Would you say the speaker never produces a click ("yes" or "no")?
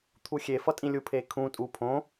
yes